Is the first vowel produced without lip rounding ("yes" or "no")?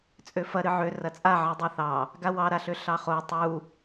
no